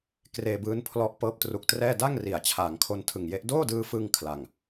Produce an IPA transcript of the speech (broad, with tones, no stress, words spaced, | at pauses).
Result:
kreː˧bɯː˦˥n pʰlɔ˦˥ʔpɤː˦˥p̚ tru˨˩k̚trɛː˥˩ da˥˩ŋri˩˦a̯ t͡ɕʰaː˩˦ŋkʰo˧ntʰɯ˨˩ŋje˦˥ʔ doː˥˩dɯː˧fɯ˧ŋ kʰla˨˩ŋ